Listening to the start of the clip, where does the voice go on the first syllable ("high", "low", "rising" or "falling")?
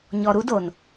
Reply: low